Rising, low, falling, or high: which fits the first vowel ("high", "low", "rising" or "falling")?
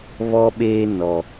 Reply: high